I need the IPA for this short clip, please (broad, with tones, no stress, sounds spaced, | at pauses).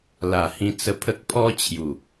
l a˨˩ h ĩ˧ t͡s ə˧ pʰ ə˦ k̚ pʰ ɔ˦ t͡ɕʰ j u˨˩